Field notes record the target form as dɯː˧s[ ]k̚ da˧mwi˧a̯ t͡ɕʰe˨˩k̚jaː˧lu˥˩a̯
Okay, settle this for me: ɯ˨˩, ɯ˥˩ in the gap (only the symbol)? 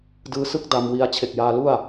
ɯ˥˩